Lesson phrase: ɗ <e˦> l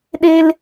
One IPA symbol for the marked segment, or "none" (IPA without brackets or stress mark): e˦